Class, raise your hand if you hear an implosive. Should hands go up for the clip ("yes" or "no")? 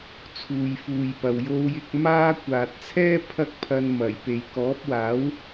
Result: no